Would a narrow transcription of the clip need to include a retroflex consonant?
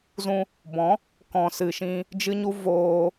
no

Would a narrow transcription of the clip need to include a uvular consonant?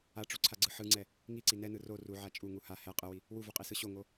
yes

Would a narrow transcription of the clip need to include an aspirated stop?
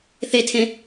yes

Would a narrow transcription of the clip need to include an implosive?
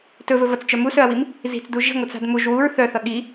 yes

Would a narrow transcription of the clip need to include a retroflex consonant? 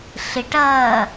yes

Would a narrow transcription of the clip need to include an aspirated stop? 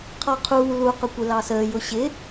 yes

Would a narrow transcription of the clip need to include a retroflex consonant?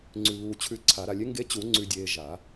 no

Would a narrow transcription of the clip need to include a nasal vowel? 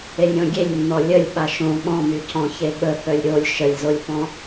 yes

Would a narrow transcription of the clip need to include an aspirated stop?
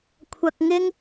yes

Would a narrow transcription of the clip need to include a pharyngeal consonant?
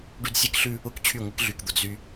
no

